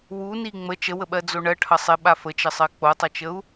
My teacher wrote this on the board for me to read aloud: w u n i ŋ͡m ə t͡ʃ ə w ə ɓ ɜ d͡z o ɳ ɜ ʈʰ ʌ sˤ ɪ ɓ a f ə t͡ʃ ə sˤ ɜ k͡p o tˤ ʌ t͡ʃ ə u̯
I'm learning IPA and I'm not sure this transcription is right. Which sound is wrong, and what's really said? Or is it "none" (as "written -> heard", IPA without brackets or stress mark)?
none